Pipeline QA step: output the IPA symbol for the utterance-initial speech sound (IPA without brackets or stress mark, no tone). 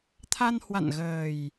t̪ʰ